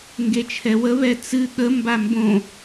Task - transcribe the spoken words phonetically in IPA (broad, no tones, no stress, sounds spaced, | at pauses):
ŋ ɡ e t͡ʃʰ ɛ w ə β ɛ t͡s ɨ ɠ ə m b a m b õ